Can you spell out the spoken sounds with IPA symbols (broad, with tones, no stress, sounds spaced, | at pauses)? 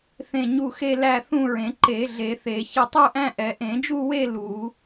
θ ẽ˥˨ ɲ u˥˨ x e˥˨ l æ˥˨ θ ũ˥˨ ɹ ẽ˨˩˦ ǃ e˨˩˦ ɮ e˨˩˦ θ e˨˩˦ ç ɪ˥˨ tˤ u˥˨ ʔ æ̃˥˨ ʔ ɛ˨˩˦ ʔ ẽ˨˩˦ d͡ʒ u˥˨ w e˥˨ l u˨˩˦